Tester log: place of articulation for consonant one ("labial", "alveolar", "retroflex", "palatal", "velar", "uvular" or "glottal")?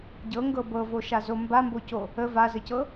palatal